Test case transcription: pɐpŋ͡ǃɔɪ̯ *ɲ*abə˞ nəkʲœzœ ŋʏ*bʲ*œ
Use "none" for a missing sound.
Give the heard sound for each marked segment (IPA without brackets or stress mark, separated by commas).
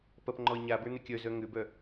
ɲ, b